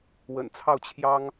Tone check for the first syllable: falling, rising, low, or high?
low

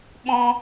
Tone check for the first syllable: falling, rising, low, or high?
high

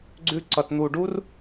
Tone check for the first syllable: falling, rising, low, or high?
high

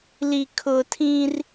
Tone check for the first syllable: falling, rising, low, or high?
low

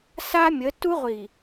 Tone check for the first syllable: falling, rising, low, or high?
high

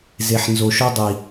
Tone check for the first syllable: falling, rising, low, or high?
low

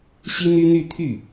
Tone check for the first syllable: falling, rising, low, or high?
high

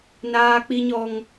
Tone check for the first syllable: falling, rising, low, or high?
high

